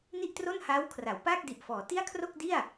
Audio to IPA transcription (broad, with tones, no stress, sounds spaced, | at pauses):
n i˥˩ ʔ t r o˥˩ n h aː˦˥ w kʰ r a˩˦ w p aː˥˩ k̚ d i˨˩ ʔ f ɔː˩˦ t i˥˩ a̯ kʰ r o˥˩ k̚ d i˥˩ a̯